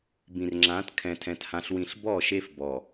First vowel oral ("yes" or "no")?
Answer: no